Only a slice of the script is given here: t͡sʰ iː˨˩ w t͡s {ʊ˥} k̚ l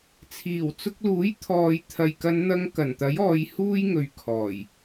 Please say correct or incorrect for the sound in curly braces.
incorrect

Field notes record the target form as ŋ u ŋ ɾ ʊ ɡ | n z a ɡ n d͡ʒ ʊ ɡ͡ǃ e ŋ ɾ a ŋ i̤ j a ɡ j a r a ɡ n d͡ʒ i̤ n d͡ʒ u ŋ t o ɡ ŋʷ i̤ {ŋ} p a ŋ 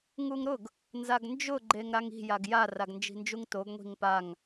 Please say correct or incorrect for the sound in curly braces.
correct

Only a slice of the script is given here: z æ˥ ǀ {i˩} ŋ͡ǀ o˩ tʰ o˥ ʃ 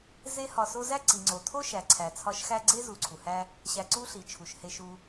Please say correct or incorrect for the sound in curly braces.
correct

